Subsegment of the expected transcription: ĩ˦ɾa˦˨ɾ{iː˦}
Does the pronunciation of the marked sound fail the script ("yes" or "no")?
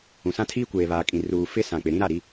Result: yes